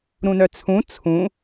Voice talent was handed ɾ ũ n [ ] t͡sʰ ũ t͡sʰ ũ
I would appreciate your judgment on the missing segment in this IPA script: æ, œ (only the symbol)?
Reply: œ